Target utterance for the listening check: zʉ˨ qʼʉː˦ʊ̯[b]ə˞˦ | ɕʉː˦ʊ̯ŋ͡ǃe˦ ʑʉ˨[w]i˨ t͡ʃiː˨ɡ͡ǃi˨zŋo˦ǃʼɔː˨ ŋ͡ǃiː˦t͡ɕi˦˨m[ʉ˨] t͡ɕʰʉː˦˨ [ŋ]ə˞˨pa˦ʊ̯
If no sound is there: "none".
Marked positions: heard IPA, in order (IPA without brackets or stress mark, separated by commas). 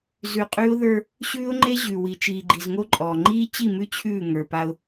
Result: ð, w, ʉ˦, ŋ